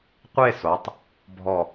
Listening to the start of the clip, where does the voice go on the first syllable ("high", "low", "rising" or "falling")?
falling